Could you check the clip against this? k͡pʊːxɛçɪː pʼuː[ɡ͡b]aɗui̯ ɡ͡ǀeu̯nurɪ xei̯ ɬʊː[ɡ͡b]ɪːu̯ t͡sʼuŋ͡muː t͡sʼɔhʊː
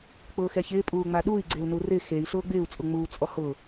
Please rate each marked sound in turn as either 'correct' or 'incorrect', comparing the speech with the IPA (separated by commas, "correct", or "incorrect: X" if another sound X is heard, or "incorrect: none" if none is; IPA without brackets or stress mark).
incorrect: ŋ͡m, correct